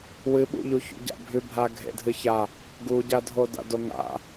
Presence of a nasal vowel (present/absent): absent